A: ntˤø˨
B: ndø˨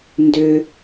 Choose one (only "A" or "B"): B